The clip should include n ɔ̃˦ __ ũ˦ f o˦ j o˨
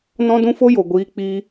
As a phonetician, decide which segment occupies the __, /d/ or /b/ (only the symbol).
d